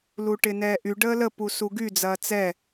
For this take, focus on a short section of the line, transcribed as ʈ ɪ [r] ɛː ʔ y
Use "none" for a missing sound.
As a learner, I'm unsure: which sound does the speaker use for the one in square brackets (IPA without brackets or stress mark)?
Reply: n